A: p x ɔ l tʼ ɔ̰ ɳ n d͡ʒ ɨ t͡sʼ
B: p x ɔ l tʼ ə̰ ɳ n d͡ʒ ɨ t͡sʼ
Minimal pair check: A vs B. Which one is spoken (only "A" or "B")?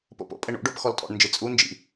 A